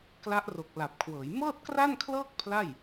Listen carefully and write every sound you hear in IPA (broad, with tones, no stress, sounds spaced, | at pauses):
k l a˦˥ ʔ r o˨˩ k̚ l a˨˩ p̚ kʰ w ɤː˩˦ j m ɤː˥˩ t̚ k r a˥˩ n kʰ l ɤː˥˩ k̚ pʰ l a˥˩ j